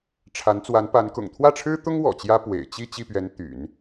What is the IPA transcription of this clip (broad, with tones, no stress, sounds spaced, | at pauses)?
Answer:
ʈ͡ʂʰ a˧˥ n t͡s w a˧˥ n p a˧˥ n k ʊ̰˨˩ ŋ t̪ʰ w ä˥˩ ʈ͡ʂʰ ɻ̩˥ t̪ ʊ˥ ŋ w ɔ̰˨˩ t͡ɕ j ä˥ p w ḛ˨˩ ɪ̯ t͡ɕ i˥˧ t͡ɕ i˥˩ p ɥ ɛ˧˥ n t̪ y̰˨˩˦ n